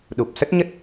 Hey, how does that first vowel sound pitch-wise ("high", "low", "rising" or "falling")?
low